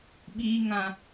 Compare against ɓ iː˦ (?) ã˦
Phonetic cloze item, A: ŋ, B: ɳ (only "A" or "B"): A